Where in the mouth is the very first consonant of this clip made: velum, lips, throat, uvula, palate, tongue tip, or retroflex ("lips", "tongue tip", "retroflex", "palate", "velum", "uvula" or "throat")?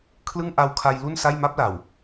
velum